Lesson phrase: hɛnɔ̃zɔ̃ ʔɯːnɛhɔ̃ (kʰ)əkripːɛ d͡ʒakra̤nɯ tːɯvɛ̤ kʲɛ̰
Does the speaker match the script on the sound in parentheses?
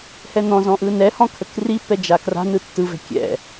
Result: yes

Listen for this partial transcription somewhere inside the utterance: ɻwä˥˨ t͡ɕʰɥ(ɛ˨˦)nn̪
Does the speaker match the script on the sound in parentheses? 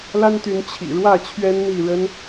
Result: no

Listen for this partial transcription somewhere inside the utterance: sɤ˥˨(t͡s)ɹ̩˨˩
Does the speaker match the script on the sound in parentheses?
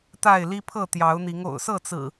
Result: yes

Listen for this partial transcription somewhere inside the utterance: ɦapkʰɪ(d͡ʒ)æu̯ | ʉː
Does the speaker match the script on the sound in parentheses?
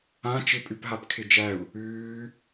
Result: yes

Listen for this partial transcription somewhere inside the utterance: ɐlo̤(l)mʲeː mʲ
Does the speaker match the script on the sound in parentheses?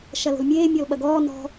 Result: yes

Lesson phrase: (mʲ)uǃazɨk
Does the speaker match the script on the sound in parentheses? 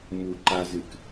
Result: no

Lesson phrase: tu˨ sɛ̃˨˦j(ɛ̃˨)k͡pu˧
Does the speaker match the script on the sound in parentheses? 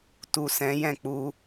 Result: no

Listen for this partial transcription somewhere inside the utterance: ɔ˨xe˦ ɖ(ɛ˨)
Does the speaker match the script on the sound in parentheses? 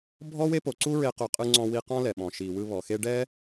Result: no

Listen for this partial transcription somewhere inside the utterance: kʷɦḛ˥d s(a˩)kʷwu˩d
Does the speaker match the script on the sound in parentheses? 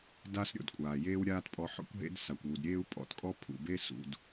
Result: yes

